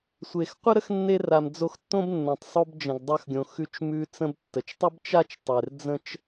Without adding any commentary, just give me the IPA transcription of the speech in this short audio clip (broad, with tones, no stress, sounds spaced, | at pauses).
sʷ e˩ x qʷ ə˥ ɾ ə˥ x nː e˧ r a˩ m d͡z o˧ x tː õ˥ b nː õ˩ tˤ sˤ o˧ b d͡ʒ ə̃˩ ɡ dˤ a˧ x ɡʲ õ˩ x ʉ˧ t͡ʃ m ʉ˧ t͡s ə̃˧ b tː ə˩ t͡ʃ tˤ ə˥ b t͡ʃ a˥ t͡ʃ tˤ e˩ r d͡z ə̃˥ t͡ʃ